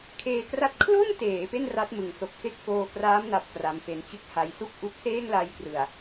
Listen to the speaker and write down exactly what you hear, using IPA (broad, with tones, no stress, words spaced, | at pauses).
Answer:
kʰeː˧kra˦˥t̚ kʰlo˥˩nteː˩˦ pe˥˩nra˦˥t̚mɯ˨˩ŋ so˨˩k̚fe˦˥k̚foː˧kraː˦˥m na˦˥p̚kra˧mfe˦˥n t͡ɕɯ˦˥k̚ha˧jsu˥˩k̚ ʔu˦˥k̚seː˥˩ŋla˧jkrɯ˨˩a̯